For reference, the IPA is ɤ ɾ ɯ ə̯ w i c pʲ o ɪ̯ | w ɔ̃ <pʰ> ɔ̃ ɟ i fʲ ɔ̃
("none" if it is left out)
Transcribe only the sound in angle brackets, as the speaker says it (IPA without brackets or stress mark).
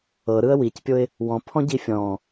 pʰ